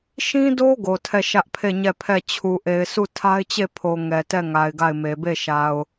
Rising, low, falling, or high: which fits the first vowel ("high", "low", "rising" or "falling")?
high